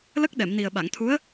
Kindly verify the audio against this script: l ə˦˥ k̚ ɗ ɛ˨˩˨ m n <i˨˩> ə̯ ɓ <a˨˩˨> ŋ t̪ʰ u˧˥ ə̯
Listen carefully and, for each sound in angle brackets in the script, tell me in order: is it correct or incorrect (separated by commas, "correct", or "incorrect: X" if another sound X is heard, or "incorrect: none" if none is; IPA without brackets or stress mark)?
correct, correct